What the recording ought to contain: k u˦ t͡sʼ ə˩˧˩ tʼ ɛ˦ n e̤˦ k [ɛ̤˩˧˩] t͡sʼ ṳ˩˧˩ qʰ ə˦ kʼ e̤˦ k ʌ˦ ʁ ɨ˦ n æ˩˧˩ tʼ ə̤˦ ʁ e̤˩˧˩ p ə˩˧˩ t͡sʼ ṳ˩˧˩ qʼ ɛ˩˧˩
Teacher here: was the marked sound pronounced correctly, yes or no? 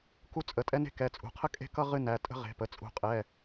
no